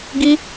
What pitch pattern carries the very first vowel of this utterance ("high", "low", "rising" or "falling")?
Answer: high